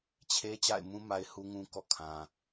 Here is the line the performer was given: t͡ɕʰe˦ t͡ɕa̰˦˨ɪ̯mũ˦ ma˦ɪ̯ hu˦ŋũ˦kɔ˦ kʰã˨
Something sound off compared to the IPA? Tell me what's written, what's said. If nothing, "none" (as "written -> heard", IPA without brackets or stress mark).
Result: none